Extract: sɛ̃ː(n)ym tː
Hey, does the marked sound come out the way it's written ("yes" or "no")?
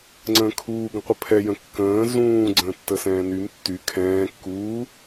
yes